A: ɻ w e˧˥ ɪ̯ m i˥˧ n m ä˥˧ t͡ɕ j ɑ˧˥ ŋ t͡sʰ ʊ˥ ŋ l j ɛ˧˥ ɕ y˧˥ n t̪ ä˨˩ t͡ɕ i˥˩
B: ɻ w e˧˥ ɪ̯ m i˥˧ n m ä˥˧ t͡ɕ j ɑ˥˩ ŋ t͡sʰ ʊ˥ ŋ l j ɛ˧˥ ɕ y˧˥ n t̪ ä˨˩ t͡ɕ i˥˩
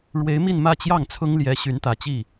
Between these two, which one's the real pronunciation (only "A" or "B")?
B